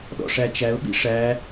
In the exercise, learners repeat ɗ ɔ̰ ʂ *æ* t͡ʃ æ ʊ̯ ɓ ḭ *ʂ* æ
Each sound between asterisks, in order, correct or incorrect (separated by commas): correct, correct